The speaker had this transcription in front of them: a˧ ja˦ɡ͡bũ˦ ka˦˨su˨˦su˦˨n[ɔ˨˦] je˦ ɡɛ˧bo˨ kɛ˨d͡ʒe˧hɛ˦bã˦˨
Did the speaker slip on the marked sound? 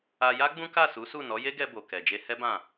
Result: no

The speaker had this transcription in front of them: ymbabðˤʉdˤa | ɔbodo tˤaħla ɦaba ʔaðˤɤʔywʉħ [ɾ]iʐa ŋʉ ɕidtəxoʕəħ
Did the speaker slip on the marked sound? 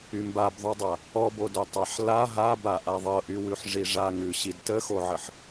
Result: yes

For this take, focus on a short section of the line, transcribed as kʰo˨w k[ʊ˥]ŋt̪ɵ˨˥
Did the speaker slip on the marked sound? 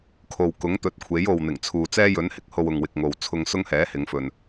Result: yes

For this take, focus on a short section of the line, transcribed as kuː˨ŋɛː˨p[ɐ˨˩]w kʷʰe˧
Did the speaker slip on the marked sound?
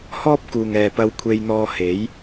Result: yes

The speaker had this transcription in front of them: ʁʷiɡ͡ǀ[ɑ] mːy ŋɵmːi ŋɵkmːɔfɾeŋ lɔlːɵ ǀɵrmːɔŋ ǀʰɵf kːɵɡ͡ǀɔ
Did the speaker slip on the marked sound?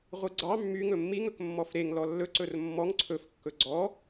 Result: no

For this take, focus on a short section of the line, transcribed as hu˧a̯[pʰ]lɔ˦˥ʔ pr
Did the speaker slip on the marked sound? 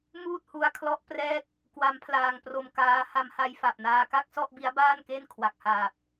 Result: yes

